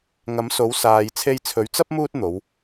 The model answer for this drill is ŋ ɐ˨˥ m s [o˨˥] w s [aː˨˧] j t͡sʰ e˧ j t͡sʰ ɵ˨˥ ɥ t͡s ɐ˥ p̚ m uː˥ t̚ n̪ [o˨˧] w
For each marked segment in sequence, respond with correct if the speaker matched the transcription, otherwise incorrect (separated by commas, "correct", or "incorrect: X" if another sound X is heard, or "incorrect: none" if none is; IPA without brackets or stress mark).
correct, incorrect: aː˧, correct